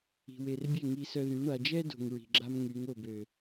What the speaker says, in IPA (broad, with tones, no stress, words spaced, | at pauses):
i̤˨we˨rbʲɛ˦˨ ŋi˧sœ˧ðy˨˦ ɳa˨d͡ʒɛ˦ do̤˨ŋɹi̤˨ɡ͡ǁa˦m ŋy˨˦ŋo˦˨bø˨